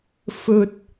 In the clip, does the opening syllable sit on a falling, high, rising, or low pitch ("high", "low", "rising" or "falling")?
low